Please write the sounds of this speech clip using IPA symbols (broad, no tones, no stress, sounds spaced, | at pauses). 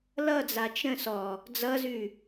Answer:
l ʌ d͡z a t͡ʃ ə̃ s ɔ | d͡z ʌ z ʉ